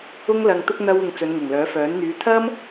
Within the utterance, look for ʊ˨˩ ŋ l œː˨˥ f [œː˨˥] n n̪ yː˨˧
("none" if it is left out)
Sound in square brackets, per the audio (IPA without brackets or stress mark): œː˨˥